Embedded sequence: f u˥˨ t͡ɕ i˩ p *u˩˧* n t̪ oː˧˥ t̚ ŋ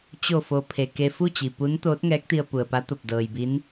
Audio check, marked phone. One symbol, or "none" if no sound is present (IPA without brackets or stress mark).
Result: u˧˥